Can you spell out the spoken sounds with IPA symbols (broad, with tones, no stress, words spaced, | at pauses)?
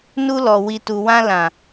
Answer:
nu˧lɔ˨ wi˨tu˨ wã˧lã˨